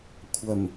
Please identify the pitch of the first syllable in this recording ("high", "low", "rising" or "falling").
low